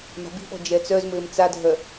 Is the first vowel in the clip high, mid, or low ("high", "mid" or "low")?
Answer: low